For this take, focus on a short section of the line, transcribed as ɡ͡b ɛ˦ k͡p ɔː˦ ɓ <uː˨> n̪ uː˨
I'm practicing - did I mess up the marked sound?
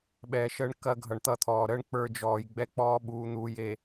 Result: no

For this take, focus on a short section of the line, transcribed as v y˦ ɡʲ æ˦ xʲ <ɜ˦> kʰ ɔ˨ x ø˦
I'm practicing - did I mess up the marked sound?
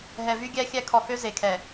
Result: yes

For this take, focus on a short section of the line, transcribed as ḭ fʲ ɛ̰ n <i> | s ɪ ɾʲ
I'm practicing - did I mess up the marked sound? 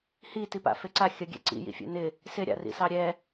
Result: yes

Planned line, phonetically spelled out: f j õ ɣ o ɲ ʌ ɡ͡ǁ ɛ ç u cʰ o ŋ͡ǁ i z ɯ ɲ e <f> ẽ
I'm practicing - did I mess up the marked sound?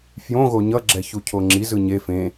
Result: no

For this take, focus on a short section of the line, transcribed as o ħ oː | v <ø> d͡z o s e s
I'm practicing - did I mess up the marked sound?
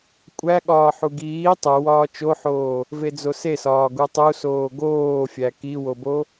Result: yes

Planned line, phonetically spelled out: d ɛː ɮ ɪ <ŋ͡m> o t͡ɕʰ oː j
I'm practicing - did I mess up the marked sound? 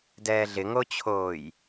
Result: yes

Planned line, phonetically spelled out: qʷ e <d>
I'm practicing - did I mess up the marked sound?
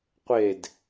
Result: no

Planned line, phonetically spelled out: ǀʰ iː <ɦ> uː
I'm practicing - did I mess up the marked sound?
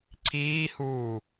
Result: yes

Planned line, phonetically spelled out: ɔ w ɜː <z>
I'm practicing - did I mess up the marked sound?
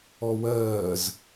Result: no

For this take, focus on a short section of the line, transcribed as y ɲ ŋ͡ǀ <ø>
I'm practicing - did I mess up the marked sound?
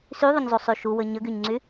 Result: yes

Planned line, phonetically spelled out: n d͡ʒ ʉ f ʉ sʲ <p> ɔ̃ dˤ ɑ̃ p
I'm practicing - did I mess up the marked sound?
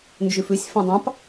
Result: yes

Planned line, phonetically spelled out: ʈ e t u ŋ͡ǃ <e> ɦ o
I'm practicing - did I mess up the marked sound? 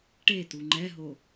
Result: yes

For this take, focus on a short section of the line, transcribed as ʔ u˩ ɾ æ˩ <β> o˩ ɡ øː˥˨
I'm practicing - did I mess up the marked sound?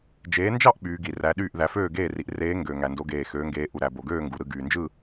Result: yes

